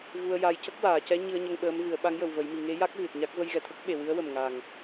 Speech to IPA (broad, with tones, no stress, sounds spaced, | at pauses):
v u˧ ə̯ j a˧ j c ə˦˥ k̚ w aː˨˩˨ c ɛ˧˥ ɲ ɨ˧ ə̯ ɲ ə˧ ŋ ɓ əː˧˥ m v ɨ˨˩˦ ə̯ ɓ a˧˥ ŋ j ə˨˩ w v ə˨˩˦ j m i˨˩˨ ŋ e˧˥ j a˦˥ k̚ ɣ ɨ˨˩ t̚ ɲ a˦˥ k̚ v ə˧ j ɣ ɛ˨˩ t̪ʰ ə˦˥ k̚ ɓ e˨˩ w ɨ˧˥ ə̯ w ə˨˩ m ŋ a˨˩ ŋ